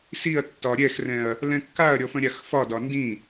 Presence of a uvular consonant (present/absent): absent